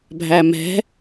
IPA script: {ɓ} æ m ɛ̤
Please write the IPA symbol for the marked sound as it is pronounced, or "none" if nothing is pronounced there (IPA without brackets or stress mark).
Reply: bʱ